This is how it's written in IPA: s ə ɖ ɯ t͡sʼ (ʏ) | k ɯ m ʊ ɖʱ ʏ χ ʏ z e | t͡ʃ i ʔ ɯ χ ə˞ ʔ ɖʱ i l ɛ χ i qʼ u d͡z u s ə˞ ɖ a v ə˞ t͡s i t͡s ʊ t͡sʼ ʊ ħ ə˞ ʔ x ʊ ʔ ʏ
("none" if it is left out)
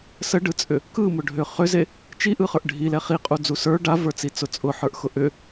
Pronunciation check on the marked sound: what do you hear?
ʏ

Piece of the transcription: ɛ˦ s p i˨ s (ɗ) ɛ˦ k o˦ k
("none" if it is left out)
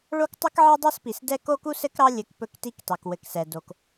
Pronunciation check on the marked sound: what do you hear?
d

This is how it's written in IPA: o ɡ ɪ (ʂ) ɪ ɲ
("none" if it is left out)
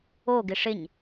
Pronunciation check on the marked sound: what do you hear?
ʂ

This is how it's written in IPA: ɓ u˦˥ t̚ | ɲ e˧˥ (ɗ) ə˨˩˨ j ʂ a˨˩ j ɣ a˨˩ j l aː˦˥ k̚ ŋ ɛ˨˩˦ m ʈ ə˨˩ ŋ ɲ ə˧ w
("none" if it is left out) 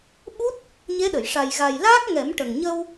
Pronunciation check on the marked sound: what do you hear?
ɗ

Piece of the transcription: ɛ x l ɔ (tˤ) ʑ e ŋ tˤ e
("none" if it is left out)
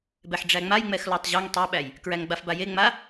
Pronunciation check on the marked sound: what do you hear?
tˤ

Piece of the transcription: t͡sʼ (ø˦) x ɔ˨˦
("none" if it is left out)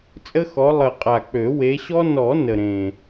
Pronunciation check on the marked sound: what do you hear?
ə˦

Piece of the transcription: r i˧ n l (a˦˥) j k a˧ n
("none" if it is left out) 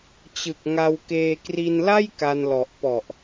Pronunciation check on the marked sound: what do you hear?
a˥˩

